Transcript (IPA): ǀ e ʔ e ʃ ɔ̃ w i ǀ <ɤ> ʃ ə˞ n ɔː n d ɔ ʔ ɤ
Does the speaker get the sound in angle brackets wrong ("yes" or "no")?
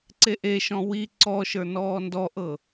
yes